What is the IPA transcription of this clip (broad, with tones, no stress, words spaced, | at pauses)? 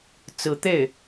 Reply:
t͡sɹ̩˧˥ t̪e˥˩ɪ̯